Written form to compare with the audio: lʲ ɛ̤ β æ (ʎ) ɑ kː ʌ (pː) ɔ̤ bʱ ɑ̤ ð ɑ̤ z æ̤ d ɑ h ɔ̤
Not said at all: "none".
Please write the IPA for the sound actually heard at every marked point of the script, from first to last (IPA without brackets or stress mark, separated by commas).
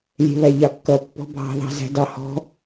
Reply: ʎ, pː